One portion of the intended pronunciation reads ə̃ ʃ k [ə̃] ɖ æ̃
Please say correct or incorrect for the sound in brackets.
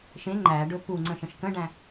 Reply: correct